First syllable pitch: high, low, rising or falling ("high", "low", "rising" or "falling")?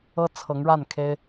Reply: high